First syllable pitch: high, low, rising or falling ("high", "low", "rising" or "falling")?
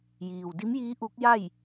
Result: low